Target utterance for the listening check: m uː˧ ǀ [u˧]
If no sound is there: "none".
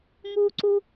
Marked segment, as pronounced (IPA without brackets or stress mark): u˧